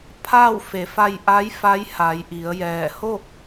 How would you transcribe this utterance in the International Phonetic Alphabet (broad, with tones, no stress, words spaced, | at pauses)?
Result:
pʰaː˥˨wfe˩˧ fa˧jʔa˧˥j fa˧˥j ha˩˧jʔi˩˧ə̯jɛː˧˩ ho˥˨k̚